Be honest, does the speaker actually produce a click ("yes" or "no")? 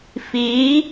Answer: no